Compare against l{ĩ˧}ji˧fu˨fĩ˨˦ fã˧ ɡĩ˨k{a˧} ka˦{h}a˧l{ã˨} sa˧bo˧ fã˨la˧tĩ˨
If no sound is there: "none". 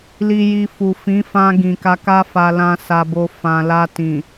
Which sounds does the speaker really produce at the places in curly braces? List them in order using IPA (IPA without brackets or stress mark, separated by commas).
i˧, a˧, f, ã˧